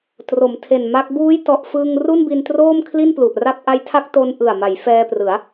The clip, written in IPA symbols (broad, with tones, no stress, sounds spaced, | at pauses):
t r o˩˦ m tʰ e˨˩ n m a˦˥ k̚ b uː˦˥ j t ɔ˨˩ ʔ f ɯː˧ ŋ r u˥˩ n b i˧ n t r oː˥˩ m kʰ l i˥˩ n p l u˨˩ ʔ r a˥˩ p̚ ʔ a˦˥ j tʰ a˦˥ k̚ t o˧ n ʔ ɯ˨˩ a̯ m a˩˦ j f ɛː˧ p r ɯ˩˦ a̯